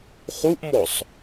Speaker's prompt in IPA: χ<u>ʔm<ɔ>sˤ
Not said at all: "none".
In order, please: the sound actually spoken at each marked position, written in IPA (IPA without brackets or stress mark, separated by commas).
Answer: u, ɔ